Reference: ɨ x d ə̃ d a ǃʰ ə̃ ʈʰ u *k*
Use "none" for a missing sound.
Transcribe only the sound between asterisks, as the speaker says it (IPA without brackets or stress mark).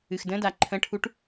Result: ʈ